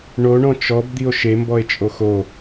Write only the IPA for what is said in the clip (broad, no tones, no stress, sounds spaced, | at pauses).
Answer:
ɳ o ɳ ɔ̃ t͡ʃ ɔ b d̪ i o̯ ʃ e m b ɔ e̯ t͡ʃʼ o x o